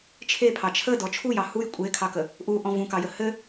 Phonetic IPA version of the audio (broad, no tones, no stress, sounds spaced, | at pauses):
t͡ʃʰ e pʰ ɑ t͡ʃʰ ə d ɔ t͡ʃʰ u j ɑ h u j kʷʼ e kʰ ɑ k ə | ʔ u ʔ ɔ̃ v ũ k ɑ j ə h ɘ